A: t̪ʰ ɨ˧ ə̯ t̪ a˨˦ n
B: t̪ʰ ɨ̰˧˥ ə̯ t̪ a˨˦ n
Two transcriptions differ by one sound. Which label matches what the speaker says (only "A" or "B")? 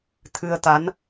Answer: A